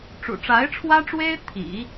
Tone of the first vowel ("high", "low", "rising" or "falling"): low